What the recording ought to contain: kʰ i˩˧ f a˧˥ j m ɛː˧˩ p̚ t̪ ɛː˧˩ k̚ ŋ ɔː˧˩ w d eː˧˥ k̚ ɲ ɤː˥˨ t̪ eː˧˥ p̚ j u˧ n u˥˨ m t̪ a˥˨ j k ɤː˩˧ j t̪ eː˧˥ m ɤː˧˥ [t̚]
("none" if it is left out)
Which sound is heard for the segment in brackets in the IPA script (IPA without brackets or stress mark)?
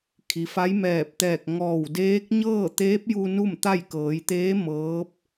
p̚